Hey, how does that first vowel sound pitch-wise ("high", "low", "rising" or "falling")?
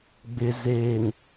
low